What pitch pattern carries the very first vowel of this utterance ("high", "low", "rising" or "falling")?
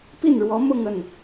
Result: falling